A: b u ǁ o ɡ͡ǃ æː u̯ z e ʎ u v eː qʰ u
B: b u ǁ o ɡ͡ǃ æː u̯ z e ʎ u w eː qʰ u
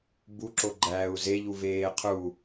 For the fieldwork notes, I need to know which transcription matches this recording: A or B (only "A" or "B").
A